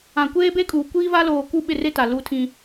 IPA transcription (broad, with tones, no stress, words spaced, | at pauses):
ã˨kʷeː˦be˦ kʼuː˨kʷiː˦va˦ loː˨ ku˦˨ɓɪ˦˨re˦ ta˨lu˦tʰĩ˦